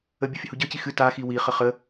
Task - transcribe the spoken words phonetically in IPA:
ə bʲ ɯ fʲ ə h u ɟ ə˞ c i x ɨ t a x i w i χ ə χ ə

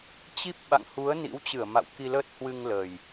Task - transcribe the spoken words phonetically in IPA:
t͡ɕ i˦˥ p̚ ɓ a̰˧˨ ŋ h u˨˦ ə̯ n ḭ˧˥ w t͡ɕ ɨ˧˩ ə̯ m a̰˧˨ w k i˧ l əː˦˥ t̚ h w ɨ˧ ŋ l ə˨˩ j

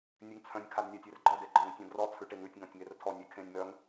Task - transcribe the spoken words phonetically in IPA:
nʲ ʉ ŋ t͡sʰ œ̃ nʲ kʰ a d nʲ a tʲ e r ɡ͡ǃ ɔ d e ɡ͡ǃ ɔ̃ ŋ tʲ ɔ̃ d r ɔ t͡sʰ ʉ ʈ e ŋ ʉ tʲ ŋ ɔ̃ tʲ ŋ e r tʰ ɔ nʲ e kʰ ẽ nʲ m œ ŋ

